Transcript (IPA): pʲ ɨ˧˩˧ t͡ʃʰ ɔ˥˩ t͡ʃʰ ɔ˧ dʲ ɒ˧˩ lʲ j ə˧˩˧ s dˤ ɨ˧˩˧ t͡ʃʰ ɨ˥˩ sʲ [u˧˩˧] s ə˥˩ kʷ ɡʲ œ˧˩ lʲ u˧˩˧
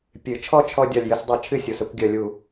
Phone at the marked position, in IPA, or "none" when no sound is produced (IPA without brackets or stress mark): u˩˧˩